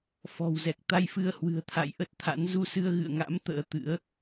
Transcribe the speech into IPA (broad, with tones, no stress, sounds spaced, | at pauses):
f ɔ̤˨˩ w z ɛ˨˩ k̚ t̪ a˧ j f ɨ˧ ə̯ h w ɨ̤˨˩ ə̯ t̪ʰ a̰˧˨ j ʔ ə˦˥ t̚ t̪ʰ a̰˧˥ n z u˧ s ɨ˧ ə̯ ɣ ɨ̰˧˨ ə̯ ŋ a̰˧˥ m t̪ ə̰ː˧˥ t̪ ɨ̰˧˥ ə̯